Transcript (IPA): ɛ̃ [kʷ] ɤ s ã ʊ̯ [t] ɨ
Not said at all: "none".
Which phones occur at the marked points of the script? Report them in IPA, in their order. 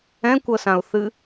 kʷ, θ

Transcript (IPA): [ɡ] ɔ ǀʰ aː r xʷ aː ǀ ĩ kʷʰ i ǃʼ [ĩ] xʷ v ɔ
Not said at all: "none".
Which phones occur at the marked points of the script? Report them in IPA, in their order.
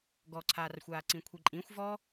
ɡ, ĩ

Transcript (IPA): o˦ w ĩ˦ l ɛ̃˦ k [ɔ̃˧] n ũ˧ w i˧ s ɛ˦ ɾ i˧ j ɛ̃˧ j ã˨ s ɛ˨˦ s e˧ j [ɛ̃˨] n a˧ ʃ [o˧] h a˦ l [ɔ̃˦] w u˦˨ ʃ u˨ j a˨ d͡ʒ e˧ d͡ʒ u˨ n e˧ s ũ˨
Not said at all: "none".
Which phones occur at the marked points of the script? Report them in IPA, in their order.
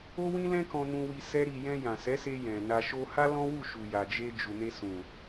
ɔ̃˧, ɛ̃˨, o˦, ɔ̃˦

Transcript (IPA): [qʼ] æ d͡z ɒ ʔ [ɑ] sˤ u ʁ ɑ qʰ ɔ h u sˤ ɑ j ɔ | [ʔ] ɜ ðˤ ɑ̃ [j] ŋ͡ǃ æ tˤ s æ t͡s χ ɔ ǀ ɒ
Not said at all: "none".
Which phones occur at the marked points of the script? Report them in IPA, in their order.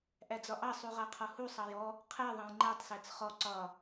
ʔ, ɑ, qʰ, j

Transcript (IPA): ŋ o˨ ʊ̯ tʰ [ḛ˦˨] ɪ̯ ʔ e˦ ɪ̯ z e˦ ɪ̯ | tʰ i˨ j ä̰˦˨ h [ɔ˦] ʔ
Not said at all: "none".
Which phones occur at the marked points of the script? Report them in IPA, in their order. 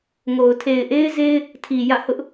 e˨, ʊ˦

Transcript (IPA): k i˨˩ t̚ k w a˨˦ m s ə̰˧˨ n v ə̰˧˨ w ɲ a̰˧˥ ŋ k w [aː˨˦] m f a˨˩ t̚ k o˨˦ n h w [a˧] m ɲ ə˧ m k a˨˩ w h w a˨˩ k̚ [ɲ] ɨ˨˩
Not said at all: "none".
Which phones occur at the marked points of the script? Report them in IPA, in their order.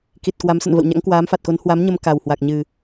aː˨˦, a˨˦, ɲ

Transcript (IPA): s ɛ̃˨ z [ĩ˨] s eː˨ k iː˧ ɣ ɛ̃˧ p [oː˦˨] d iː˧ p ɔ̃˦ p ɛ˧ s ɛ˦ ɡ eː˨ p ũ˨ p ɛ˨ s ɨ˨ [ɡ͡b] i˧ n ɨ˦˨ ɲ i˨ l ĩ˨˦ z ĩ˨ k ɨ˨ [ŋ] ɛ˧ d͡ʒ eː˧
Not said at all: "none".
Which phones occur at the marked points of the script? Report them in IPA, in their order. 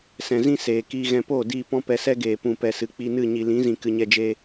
ĩ˦, oː˦˨, k͡p, ɲ

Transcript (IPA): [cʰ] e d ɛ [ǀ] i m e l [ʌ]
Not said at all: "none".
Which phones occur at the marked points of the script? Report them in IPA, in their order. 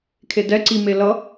kʰ, ǀ, ʌ

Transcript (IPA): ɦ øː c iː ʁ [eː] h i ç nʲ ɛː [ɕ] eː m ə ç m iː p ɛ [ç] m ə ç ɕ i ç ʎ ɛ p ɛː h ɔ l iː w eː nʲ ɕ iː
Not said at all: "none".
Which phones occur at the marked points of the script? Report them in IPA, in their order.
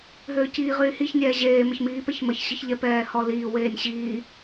yː, ʑ, ç

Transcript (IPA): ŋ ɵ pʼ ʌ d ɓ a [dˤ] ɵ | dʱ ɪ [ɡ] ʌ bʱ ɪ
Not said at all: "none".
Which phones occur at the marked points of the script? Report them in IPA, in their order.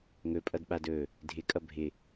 d, kʼ

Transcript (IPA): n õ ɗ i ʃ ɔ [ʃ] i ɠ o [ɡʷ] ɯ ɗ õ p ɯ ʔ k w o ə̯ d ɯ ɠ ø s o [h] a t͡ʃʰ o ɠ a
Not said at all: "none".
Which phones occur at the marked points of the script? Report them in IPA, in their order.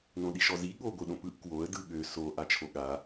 z, ɡʷ, ʔ

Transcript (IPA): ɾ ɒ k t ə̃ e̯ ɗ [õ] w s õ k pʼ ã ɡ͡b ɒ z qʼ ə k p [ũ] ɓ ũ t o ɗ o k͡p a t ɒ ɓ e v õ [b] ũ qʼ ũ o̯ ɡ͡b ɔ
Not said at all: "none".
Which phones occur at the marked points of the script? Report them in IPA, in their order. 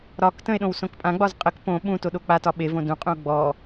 õ, õ, d

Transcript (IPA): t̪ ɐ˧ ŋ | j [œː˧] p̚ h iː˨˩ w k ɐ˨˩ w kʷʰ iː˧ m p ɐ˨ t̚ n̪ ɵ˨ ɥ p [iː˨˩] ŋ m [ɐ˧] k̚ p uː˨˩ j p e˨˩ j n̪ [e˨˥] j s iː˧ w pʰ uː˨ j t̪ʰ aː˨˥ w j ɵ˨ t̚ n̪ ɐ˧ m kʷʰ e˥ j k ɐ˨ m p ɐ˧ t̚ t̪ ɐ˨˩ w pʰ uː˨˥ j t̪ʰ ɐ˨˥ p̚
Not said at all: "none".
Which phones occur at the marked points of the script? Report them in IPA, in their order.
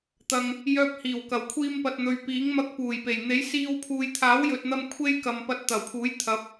œː˧, iː˨˥, ɐ˧, e˨˥

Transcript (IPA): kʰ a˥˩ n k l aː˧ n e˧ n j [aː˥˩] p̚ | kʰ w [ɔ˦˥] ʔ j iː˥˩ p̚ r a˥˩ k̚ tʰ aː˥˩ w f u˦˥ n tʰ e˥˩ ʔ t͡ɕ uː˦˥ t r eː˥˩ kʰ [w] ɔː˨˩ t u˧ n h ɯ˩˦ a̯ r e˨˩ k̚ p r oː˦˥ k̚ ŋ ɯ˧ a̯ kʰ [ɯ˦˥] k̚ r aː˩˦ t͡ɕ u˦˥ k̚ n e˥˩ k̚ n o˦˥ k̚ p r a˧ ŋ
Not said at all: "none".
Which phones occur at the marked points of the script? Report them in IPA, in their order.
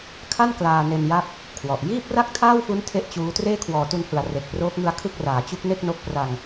a˥˩, ɔ˨˩, w, ɯ˥˩

